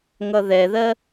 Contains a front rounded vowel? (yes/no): no